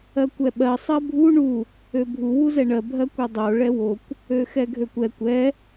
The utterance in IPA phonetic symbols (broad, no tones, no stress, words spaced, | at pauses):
ɜkʷɛɓɜ sˤɜbʱu ɳu | øbʱu wuzɛɳɜ bʱɜkʷɛdˤo ɭɛwokʷ | øxɛɡʱøkʷɛkʷ ɛ